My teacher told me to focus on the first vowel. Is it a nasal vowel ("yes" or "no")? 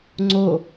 no